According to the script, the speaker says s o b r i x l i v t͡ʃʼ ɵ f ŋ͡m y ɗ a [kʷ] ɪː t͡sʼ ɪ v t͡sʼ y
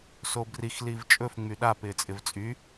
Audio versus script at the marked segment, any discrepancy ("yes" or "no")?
yes